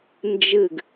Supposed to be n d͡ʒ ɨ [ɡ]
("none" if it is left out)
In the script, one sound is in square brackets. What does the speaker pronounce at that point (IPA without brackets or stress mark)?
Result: ɡ